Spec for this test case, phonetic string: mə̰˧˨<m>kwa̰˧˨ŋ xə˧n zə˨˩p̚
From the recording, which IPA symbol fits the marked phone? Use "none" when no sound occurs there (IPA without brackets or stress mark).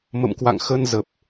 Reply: m